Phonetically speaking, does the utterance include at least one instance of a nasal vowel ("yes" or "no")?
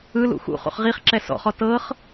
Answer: no